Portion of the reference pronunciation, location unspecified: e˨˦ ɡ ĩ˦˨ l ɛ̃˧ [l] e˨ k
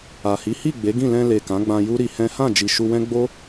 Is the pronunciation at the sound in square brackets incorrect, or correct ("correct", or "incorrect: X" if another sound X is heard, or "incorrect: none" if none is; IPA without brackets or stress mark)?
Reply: correct